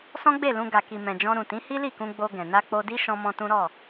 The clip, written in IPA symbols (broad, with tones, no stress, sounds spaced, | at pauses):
s ɔ̃˦ ɡ͡b e˦˨ l ũ˧ ɡ a˨ k i˨ m ɛ̃˨ d͡ʒ ɔ̃˧ ɾ ũ˨ t ĩ˨˦ h i˦ l i˦˨ k ũ˧ ɡ͡b o˧ ɡ ɛ̃˨ n a˧ k͡p o˧ d i˦ ʃ ɔ̃˦ m ɔ̃˦ t ũ˦ ɾ ɔ˦˨